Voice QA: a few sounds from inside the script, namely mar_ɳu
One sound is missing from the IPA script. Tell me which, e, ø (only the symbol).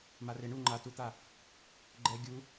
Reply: e